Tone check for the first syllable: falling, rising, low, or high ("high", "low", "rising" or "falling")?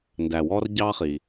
low